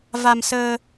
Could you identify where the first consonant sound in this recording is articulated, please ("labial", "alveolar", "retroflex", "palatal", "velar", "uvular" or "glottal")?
labial